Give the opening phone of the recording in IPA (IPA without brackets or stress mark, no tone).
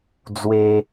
d͡z